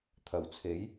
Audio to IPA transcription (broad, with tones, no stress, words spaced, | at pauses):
t̪ʰɐ˨˩wt͡sʰe˨˥j